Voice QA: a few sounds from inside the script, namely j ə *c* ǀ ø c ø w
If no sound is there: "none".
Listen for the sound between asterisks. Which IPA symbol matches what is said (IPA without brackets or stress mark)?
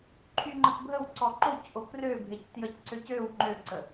c